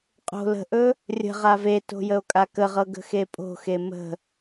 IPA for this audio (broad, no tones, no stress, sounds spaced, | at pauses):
qʼ o̤ l ə̤ ʔ ɵ | rʲ ə̤ ʁ a v e t o̤ j ə o̯ kʼ a k ə ʁ ɤ ɡ ə̤ x e pʼ o̤ x e m ə̤